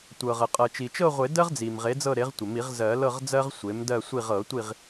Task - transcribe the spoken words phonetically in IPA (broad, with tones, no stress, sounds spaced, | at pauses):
tʷ ɤ˩ ʁ ə˩ qʼ ɤ˩ t͡ʃ i˩ t͡ʃ ɤ˦˨ ʁʷ e˨˩˦ d ɜ˦ ʁ d͡z i˩ m ʁ e˩˥ d͡z ɤ˦˨ ɾ e˩˥ ʁ tʷ ə˩ m i˨˩˦ ʁ z ɜ˨˩˦ l ɤ˦˨ ʁ d͡z ɜ˦ ʁ sʷ e˩˥ m d ɜ˦˨ sʷ i˦˨ ʁ ɤ˨˩˦ tʷ i˦˨ ʁ